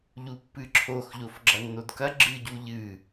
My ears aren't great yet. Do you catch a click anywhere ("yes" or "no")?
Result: yes